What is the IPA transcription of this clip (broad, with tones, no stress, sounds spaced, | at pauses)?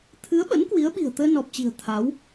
t̪ʰ ɨ˨˦ ə̯ ɓ ə̰˧˥ n k w i˨˦ ə̯ ɓ i̤˨˩ ə̯ t̪ əː˧ n ɔ˨˩ p̚ t͡ɕ i̤˨˩ ə̯ t̪ʰ a˨˦ w